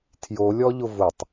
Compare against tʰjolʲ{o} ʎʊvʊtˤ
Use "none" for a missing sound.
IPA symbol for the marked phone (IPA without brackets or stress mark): ɔ